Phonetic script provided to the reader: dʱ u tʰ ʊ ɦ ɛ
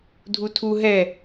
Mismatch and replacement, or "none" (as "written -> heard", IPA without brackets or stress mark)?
ʊ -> u